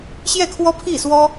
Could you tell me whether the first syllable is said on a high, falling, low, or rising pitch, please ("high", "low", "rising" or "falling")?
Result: falling